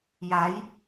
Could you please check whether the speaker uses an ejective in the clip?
no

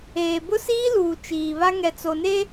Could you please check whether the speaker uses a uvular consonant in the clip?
no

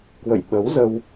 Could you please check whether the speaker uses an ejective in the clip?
no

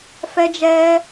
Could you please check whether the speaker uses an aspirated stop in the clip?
no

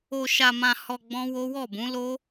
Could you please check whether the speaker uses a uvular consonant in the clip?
no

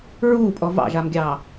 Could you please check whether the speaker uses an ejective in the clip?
yes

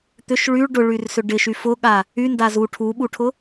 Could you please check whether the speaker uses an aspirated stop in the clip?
yes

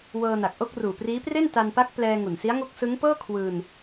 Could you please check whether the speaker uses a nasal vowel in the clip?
no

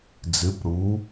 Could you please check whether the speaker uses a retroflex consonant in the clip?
yes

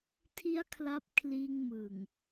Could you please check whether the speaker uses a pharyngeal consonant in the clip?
no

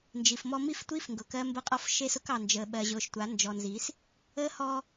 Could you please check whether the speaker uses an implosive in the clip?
yes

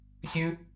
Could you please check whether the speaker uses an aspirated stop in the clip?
no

